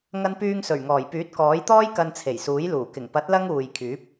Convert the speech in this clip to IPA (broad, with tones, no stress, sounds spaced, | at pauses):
ŋ ɐ˧ n p yː˧ ŋ s ɵ˨˩ ɥ ŋ ɔː˨˩ j p yː˨˥ t̚ k ɔː˨˥ j t̪ ɔː˥ j k ɐ˧ n t͡sʰ e˨˩ j s uː˨˥ j l uː˨˩ k ɪ˨˩ ŋ p ɐ˨˥ t̚ l ɐ˧ ŋ uː˨ j kʰ yː˨˥ p̚